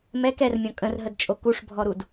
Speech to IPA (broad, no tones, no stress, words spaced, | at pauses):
mɛk ɛrmʲɔ̃ kʼə̃rɦədt͡ʃʼo kuʂbʱɔɾud